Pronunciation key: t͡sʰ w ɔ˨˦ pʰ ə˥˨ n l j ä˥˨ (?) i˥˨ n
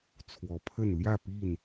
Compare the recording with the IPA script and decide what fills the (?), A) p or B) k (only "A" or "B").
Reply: A